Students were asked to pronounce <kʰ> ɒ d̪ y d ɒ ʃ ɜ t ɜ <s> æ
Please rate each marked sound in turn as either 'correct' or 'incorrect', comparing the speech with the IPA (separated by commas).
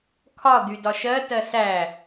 correct, correct